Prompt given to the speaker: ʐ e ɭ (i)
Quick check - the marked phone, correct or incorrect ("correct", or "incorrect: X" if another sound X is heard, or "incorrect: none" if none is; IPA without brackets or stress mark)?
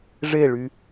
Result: incorrect: y